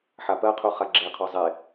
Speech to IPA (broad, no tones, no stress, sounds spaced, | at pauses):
ħ a p ɜ qʰ u χ a ɡ͡ǁ e qʰ ɔ zˤ e